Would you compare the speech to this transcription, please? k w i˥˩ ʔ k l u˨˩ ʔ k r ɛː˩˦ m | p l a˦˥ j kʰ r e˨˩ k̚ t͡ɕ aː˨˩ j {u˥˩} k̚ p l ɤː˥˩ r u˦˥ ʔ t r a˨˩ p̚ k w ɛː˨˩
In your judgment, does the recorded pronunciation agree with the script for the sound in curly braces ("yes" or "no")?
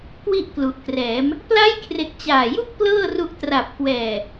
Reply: yes